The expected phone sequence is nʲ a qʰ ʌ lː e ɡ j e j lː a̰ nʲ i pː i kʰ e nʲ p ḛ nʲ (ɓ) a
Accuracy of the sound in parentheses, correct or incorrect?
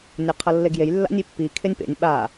correct